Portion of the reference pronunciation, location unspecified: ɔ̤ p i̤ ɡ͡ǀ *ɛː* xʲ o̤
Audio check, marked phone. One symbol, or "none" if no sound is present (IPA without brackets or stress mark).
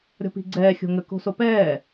ɛː